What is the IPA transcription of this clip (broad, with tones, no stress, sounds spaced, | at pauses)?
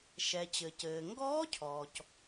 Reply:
ʃ ɛ˩ t͡ɕ ɘ˩ c ɘː˩ ŋ ɡ ɔː˦˥ cʰ ɔː˩ c